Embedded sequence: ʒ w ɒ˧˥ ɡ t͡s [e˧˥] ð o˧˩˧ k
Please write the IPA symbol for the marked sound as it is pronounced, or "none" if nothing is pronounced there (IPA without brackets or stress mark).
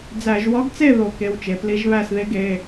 e˥˨